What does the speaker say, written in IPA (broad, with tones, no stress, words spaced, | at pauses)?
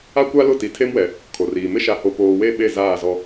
a˦ kʷa˦lʊ˦˨ti˨ tʰe˦mwɛ˨ | kʰo˨riː˨ mɪ˦ʃa˨ho˨ poː˨we˦˨ ɓe˦˨ zaː˦˨zɔ˦